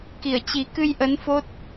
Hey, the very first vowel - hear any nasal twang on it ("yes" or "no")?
no